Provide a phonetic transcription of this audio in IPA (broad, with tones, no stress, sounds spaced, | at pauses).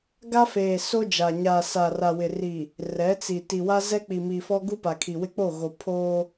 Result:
ɡ a˦ f eː˨ s o˦ d͡ʒ a˨ ɲ aː˨ s a˨ r a˨ w ɪ˨ r i˨ | r ɛ˨˦ t͡s i˨ t i˨ w a˦ z ɛ˦ k͡p i˨ m iː˨ f ɔ˦ ɡ u˦ p a˨ kʰ i˨ w ɪ˦ k͡p o˦˨ ɣ o˨ pʰ oː˦